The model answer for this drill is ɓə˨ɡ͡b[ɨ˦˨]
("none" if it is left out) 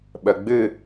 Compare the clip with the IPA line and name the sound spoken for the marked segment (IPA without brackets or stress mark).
ɨ˦˨